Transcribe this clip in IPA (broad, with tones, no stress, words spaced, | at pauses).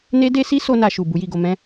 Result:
ne˦ de˦si˦so˧ na˧ʃu˨ bu˨˦ji˦˨ɡo˧ mɛ̃˦